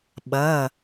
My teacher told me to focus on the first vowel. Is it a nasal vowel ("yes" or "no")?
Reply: no